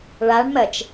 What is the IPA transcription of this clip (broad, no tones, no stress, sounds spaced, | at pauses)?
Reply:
ɭ a ɳ m ɜ t͡ʃ